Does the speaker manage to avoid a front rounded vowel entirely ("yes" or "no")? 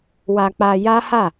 yes